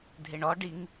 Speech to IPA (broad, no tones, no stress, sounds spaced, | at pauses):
dʱ ɪ ɳ ɔ ɖ i ŋ